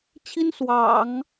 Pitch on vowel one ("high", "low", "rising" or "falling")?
high